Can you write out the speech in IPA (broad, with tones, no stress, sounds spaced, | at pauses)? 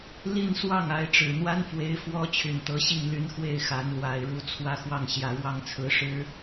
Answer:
l i˥˧ n s w ɑ˥˩ ŋ a˧˥ ɪ̯ ʈ͡ʂ ɻ̩˨˩ n̪ w a˥ n f w e˧˥ ɪ̯ f w ɔ˥ t͡ɕʰ y˨˩ n t̪ ɤ˧˥ ɕ i˥˩ ŋ l y˧˥ n x w e˥˩ ɪ̯ x a˧˥ n l w a˨˩ ɪ̯ ɻ u˧˥ t͡sʰ w ä˥˧ x w ɑ˥˩ ŋ ɕ j ä˨˩ ɻ w ɑ˥˩ ŋ t͡sʰ ɹ̩˧˥ ʂ ɻ̩˥